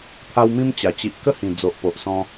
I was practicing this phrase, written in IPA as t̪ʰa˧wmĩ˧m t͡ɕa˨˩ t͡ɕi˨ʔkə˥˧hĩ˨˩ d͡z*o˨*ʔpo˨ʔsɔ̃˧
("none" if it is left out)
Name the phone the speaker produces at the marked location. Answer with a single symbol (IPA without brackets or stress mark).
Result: o˨